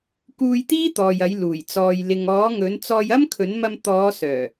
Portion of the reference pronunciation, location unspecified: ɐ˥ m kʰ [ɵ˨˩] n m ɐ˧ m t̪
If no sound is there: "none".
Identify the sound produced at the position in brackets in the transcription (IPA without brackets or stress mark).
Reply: ɵ˨˥